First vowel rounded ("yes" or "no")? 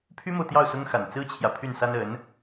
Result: yes